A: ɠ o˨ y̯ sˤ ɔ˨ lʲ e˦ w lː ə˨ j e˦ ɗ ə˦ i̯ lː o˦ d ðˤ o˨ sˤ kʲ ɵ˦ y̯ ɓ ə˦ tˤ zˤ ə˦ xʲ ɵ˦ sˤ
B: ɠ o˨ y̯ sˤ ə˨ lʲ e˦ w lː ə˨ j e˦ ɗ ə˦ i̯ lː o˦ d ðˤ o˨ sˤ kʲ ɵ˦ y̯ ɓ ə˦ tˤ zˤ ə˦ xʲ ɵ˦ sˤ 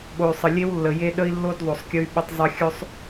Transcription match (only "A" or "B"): B